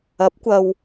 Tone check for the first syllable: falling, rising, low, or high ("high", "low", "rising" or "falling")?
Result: rising